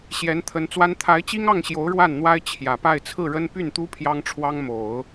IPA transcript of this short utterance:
ɕjɛ˧˥nt̪ʰə˧˥nt͡swa˥n t̪ʰa˧˥ɪ̯t͡ɕi˥ŋɑ˥˩ŋɕjo˧˥ʊ̯ ɻwa˥˩nn̪wa˥ɪ̯ t͡ɕʰjä˨˩pa˥˧ɪ̯ t͡sʰɹ̩˥˩ɻə˥n py˥˩nt̪u˥ pʰjɑ˥ŋ ʈ͡ʂʰwɑ˥ŋmo˨˩˦ʊ̯

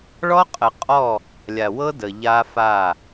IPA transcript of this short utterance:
ɭɔ˦qʼə˨qʼɔ˦˨ | lʲa˨wɤ˦ də˨ ʎa˦ fa˦˨

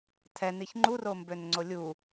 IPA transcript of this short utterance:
tʰɛniç ŋ͡ǃurombønŋ͡ǀo lʲu

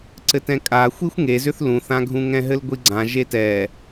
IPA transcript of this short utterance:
ǀɘtɛ̃kʼaxʷixʷ ŋezʏθ lũθãɡʱũ ŋɛ̃ɦɘlɡʷiɡ͡ǀã ʒetɛ

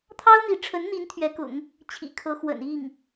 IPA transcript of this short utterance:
t̪ʰɑ˥ʊ̯n̪i˧˥ʈ͡ʂʰə˧˥nn̪i˧˥n t̪ʰɥɛ˧˥kʊ̰˨˩˦ŋ | t͡ɕʰḭ˨˩kʰɤ˧˥ xwə̰˨˩ni˥˩ŋ

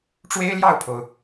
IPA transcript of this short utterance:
ʈ͡ʂwe˥ɪ̯ljɑ˥˩ʊ̯pʰo˩ʊ̯

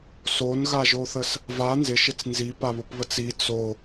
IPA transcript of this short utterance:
sonɣaʒoθəs | va nzɪʃɪt͡s nzipaβopβət͡s i t͡so

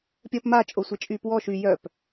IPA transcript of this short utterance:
pʲəːpma t͡ʃʼosʷet͡ʃʼyːpwɔ ʃy jœp

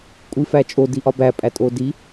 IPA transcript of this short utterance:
kʷʼifæt͡ʃʼo diʔɒbæ pʼætʼodi

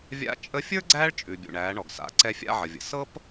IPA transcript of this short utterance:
vʲa̰˧t͡ʃʼə˧˥fʲə˞˥ ɡ͡ǀæː˥ɭt͡ʃʼʉ˩ bʲṵ˩ɳæː˩˧ɳɔ˩ɡ sa̰˩˧ǀɛ˧ fʲa̰˧ʕə˩vʲə̰˩ sɤ˥p

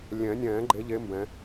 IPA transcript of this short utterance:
lʲɛ̃˨˩˦nʲɛ̃ː˨˩˦ɡ͡ǃe˨˦ʎe˨˦ mbɛ̃˨˦

